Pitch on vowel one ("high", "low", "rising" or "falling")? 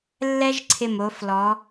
high